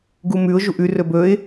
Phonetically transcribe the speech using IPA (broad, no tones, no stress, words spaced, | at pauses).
ɡumʉʊ̯ ʒuʔʉ rɵbɵɪ̯